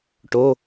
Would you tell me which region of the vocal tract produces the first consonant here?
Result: retroflex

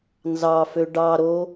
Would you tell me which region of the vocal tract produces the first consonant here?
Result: tongue tip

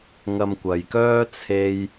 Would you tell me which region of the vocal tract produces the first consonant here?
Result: velum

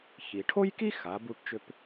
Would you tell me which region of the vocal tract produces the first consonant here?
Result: palate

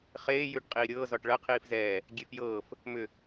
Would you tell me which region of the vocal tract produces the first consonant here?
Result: uvula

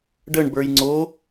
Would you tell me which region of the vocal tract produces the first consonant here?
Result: retroflex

